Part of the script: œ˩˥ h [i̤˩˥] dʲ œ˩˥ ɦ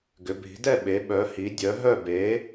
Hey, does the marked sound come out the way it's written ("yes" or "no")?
no